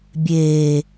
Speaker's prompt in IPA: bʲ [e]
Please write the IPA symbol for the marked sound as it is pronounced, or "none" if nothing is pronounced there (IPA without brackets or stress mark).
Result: eː